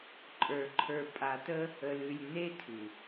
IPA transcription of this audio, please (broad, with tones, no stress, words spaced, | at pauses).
ǃʼə˞˨ ǃʰə˞˨pʼa˨tə˦ | ə˨lʉ˨lʲ ne˦tʰʉ˨